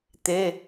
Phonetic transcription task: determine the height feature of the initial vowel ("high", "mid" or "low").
mid